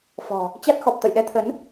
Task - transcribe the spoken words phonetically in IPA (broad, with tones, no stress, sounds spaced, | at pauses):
f ɔ̤˨˩ | t͡ɕ a˦˥ t̚ x ɔ˨˩ p̚ t̪ ə̰˧˨ j ɗ ɛ˧ t̪ʰ ə˨˦ n